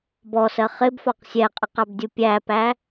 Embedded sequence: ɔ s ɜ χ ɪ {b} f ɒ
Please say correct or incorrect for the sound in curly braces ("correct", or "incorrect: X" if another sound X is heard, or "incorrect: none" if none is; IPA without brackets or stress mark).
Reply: correct